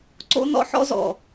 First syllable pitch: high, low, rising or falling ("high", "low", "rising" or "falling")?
high